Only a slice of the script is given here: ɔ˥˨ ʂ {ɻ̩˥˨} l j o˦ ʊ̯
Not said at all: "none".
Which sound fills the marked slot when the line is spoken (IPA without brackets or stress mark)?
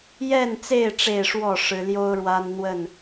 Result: ɻ̩˨˦